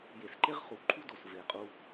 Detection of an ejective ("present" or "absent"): present